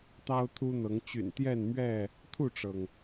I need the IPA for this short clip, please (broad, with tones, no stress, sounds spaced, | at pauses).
t̪ ɑ˦ ʊ̯ t̪ʰ u˦ n̪ ɤ˨˦ ŋ t͡ɕ y̰˨˩ n t̪ j ɛ˥˨ n m ɥ ɛ˥˨ | t̪ʰ u˥˨ ʈ͡ʂ ɤ˩ ŋ